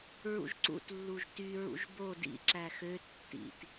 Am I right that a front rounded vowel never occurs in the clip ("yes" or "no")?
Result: no